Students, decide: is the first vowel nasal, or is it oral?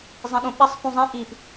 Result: nasal